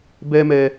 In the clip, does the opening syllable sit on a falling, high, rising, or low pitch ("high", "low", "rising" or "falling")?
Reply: high